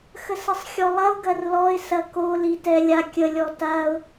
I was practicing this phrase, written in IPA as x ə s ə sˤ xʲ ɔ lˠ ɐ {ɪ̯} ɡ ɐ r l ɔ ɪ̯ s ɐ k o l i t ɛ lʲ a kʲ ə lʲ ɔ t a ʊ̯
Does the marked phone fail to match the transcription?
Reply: yes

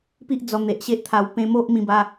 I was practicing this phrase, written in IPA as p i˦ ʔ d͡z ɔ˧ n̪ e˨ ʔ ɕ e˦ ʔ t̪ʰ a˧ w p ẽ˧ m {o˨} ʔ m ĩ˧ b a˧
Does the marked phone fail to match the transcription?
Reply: yes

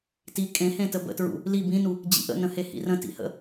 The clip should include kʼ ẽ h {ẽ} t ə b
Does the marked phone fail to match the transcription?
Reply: no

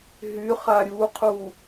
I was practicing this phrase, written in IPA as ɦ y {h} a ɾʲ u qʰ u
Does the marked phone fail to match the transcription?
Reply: yes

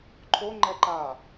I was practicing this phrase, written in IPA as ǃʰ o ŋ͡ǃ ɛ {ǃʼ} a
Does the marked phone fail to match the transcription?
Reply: yes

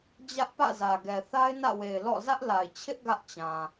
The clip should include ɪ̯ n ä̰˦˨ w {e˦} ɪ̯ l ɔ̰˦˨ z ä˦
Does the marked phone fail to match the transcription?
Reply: yes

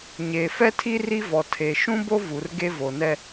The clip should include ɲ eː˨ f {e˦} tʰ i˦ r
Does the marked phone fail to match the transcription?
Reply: yes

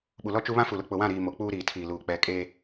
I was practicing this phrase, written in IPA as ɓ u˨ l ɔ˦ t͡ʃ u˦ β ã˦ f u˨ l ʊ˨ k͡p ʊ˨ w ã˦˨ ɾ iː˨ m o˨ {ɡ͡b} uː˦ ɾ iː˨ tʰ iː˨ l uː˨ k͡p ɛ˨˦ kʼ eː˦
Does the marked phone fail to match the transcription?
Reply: yes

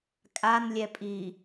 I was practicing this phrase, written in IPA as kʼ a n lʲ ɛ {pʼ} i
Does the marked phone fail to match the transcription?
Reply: no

